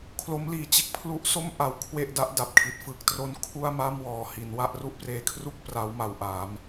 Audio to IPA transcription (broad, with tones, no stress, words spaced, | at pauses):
kʰlo˦˥mliː˨˩ t͡ɕe˦˥k̚pʰlu˦˥ʔso˥˩m ʔa˦˥wkʰwe˥˩ʔ da˦˥ʔ da˨˩p̚kʰi˨˩t̚fɯ˦˥k̚ tro˦˥nkʰu˥˩a̯ma˥˩mwɔː˨˩ hi˩˦nwa˥˩ʔ ru˥˩ʔpreː˧kʰru˥˩k̚ pra˦˥wma˧wʔa˩˦m